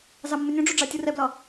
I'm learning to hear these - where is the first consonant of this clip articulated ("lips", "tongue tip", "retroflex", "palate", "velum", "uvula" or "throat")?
tongue tip